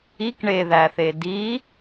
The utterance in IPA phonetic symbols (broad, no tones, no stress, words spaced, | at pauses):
ik ɳeðæθe di